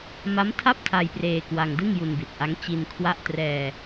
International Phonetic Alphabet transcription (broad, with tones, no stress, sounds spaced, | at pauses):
m a˦˥ m tʰ a˥˩ p̚ tʰ a˧ j p r eː˧ k w a˧ ŋ d ɯ˥˩ ŋ j u˧ n b i˨˩ t̚ ʔ a˦˥ ŋ t͡ɕ i˧ n kʰ w a˥˩ ʔ t r ɛː˧